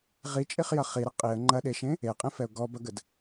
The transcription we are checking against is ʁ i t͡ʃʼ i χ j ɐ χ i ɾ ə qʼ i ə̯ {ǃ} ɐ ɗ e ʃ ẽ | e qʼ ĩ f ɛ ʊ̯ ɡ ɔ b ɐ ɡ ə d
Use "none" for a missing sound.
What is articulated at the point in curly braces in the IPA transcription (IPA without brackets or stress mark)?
ŋ͡ǃ